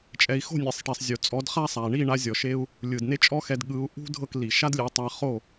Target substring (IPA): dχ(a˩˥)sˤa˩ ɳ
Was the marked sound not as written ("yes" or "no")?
yes